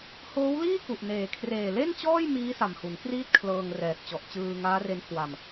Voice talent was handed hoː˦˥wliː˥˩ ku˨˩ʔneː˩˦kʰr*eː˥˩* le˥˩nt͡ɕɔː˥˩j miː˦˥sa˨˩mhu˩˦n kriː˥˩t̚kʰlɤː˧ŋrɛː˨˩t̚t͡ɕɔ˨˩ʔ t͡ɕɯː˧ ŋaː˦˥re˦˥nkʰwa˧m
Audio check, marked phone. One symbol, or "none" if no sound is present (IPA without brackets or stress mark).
eː˨˩